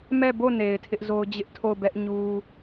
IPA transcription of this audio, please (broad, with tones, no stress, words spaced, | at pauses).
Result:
mɛ˦˨bo˦˨ ne˨ɪ̯tʰɪ˦ʔzo˦ʊ̯ d͡ʑɪ˦ʔtʰo˦˨ʊ̯bɛ˦ʔ ɲu˦